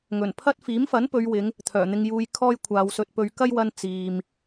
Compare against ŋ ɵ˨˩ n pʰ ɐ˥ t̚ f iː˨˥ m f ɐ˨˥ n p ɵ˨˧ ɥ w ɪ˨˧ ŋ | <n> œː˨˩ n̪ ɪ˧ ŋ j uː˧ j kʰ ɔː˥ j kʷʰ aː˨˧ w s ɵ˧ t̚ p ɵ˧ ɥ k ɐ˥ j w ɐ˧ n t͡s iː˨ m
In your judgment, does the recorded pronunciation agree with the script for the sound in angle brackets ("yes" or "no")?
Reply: no